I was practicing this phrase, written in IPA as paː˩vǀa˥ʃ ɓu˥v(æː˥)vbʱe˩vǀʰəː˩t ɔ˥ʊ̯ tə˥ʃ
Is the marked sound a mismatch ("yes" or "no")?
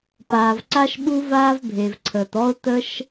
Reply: yes